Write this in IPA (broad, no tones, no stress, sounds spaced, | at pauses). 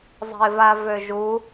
zˤ ə̤ ɪ̯ v a v ø ʒ u